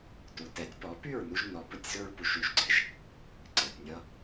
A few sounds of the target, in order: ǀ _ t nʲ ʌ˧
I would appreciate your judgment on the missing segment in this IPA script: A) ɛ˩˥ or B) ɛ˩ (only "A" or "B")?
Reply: B